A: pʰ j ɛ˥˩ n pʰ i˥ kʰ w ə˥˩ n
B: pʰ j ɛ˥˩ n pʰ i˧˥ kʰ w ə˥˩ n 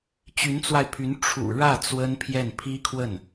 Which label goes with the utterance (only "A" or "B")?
A